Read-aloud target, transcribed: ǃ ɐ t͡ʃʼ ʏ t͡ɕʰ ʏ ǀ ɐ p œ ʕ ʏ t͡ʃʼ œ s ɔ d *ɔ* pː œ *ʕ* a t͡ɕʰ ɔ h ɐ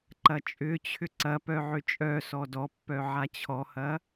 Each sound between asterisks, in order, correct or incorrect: correct, correct

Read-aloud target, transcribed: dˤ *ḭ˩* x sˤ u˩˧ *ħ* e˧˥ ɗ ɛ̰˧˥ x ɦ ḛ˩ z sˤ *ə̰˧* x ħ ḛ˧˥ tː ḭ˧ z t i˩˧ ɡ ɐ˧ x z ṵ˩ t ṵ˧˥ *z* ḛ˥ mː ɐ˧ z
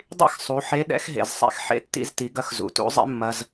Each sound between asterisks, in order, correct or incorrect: incorrect: ḭ˥, correct, incorrect: ɛ̰˧, incorrect: zˤ

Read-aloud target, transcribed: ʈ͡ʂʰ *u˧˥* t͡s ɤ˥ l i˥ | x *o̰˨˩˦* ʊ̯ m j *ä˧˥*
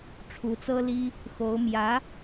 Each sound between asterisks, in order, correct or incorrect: correct, incorrect: o˧˥, correct

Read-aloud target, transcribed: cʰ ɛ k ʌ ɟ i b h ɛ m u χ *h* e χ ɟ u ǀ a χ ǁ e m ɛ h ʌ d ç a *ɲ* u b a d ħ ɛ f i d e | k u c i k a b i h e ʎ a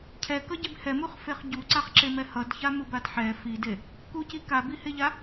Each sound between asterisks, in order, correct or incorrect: incorrect: f, incorrect: m

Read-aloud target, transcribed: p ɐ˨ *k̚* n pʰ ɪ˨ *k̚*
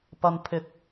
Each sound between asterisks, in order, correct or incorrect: incorrect: none, correct

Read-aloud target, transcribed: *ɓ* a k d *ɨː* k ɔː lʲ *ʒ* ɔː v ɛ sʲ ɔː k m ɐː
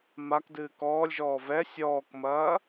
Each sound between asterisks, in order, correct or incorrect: incorrect: m, correct, correct

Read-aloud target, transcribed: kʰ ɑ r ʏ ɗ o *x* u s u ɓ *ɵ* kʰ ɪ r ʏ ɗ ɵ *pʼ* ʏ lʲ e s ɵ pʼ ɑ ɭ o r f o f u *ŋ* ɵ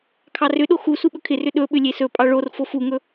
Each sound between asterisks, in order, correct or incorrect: correct, correct, incorrect: ɓ, correct

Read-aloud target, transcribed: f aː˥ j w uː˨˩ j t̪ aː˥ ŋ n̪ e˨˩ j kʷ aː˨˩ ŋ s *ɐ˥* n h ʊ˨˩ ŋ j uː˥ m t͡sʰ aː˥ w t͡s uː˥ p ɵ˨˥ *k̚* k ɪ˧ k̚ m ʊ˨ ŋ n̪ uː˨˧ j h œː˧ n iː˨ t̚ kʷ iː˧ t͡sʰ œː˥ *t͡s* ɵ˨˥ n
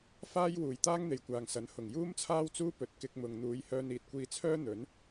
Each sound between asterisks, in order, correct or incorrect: incorrect: ɐ˨˥, incorrect: t̚, incorrect: n̪

